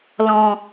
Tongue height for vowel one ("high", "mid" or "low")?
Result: mid